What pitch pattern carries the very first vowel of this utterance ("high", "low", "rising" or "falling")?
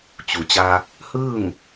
low